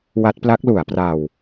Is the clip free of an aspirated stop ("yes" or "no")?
yes